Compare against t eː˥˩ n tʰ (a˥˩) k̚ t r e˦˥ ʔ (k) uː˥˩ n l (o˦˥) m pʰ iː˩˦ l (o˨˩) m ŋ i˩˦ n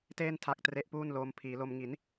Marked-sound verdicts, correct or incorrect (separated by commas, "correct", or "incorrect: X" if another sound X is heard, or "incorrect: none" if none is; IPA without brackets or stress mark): incorrect: a˦˥, incorrect: p, incorrect: oː˦˥, incorrect: o˧